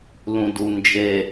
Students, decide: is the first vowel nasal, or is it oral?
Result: nasal